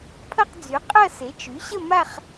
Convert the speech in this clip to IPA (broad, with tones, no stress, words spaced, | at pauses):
pʰɐ˥˧qd͡zy˩˥ qʼɐ˥˧ se˩˥ t͡ʃy˩˥ɕə˥˧ ma˥˧χ